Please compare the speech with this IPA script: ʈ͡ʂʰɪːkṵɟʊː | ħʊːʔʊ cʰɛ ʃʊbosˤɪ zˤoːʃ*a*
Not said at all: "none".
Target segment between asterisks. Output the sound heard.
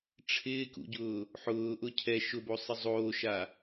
a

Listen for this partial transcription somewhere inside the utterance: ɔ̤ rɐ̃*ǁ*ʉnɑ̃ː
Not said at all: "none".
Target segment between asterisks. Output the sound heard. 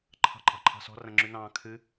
ŋ͡ǁ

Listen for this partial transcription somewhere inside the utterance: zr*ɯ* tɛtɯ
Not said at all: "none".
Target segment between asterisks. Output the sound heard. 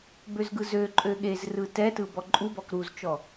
ɯ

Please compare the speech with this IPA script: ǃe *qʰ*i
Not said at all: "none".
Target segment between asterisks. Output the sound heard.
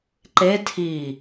tʰ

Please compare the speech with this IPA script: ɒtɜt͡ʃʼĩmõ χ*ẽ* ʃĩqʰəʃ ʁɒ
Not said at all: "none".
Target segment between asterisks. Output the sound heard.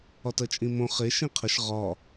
e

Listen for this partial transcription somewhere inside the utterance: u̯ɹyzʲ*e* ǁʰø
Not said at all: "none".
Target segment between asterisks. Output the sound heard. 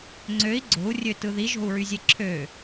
e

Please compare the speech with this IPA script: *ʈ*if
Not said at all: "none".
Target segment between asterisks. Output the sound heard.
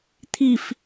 t̪ʰ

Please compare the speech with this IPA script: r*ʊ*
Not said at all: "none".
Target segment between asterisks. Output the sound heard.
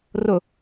ʊ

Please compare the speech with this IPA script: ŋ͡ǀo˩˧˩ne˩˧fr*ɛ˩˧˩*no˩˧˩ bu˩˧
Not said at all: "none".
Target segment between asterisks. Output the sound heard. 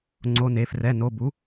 ɛ˩˧˩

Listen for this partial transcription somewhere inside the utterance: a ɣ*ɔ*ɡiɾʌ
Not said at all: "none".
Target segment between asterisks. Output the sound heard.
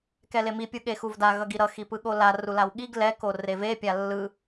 ʌ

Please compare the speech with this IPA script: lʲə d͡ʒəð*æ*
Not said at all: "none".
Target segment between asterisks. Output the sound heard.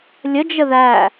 æ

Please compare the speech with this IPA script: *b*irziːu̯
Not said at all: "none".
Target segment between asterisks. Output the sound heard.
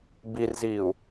b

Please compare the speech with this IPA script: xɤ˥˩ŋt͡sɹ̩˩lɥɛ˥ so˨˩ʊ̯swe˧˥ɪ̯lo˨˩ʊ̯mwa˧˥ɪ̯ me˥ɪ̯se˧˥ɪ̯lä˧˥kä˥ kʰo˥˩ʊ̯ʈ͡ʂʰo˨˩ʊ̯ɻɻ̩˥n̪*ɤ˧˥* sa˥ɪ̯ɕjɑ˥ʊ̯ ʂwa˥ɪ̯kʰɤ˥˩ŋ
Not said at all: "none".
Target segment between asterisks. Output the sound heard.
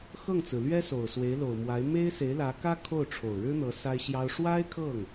ɤ˧˥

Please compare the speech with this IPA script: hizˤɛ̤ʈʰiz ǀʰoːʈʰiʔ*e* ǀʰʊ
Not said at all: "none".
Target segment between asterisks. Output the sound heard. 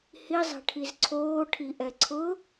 ɛ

